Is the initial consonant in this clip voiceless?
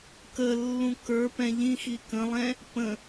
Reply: yes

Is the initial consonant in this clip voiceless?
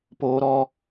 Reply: yes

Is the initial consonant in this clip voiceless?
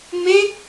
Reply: no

